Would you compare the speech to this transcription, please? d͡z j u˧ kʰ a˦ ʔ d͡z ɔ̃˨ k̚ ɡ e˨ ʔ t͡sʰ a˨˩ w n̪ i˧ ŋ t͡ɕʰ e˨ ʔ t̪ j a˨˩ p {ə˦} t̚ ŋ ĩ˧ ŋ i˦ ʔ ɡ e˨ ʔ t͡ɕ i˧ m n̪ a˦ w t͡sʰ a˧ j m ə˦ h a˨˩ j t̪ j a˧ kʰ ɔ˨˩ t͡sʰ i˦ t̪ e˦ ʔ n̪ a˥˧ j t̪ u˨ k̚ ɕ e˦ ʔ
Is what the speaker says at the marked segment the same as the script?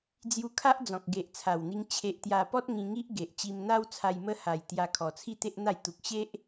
no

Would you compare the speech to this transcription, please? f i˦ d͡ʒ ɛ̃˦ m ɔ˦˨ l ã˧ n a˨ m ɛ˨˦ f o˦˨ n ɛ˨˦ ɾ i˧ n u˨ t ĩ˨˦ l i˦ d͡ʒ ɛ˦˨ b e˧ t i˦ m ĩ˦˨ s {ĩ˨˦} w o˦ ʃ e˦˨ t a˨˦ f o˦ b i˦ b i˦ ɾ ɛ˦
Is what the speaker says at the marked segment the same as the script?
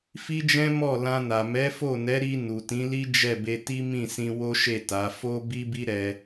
no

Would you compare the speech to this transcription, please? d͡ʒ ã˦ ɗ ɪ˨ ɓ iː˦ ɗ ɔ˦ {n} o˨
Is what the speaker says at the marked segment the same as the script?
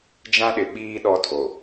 no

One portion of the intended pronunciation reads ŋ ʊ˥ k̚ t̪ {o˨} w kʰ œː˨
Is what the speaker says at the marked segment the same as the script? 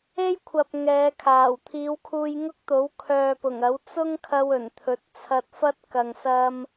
no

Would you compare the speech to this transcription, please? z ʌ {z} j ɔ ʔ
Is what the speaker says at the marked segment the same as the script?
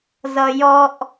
no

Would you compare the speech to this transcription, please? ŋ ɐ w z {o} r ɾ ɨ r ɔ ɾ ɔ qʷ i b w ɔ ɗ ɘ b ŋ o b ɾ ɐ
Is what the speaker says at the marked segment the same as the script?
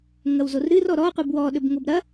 yes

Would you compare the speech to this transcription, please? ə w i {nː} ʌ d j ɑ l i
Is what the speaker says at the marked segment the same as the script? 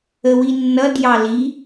yes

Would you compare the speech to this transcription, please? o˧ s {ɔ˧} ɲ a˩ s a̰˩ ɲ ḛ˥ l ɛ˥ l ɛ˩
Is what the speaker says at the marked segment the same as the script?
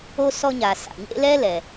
yes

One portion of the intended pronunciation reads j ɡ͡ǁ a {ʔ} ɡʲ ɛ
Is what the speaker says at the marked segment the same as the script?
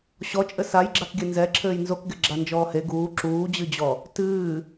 no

